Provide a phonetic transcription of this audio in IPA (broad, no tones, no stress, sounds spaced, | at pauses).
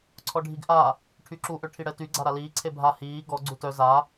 ǀʰ ɔ ɖʱ i ɡ ʔ a | ʈʰ y ǁ u ʔ ø ʈʰ i ɽ ɛ t y ɡ͡ǀ a ɾ a l iː ǀʰ e bʱ a h iː ɡ ɔ ɡ͡ǀ u t œ z a